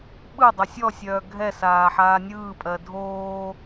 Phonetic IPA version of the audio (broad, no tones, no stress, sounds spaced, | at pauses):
ɓ ɯ dˤ o sʲ ɔ sʲ œː ɡʱ ɛ s aː ħ aː nʲ ɯː pʼ ɜ dʱ oː